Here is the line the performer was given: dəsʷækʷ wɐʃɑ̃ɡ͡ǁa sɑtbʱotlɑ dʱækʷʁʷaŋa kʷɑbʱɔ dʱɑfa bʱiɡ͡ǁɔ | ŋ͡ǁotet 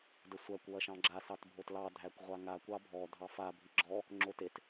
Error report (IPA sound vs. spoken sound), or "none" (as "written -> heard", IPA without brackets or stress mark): none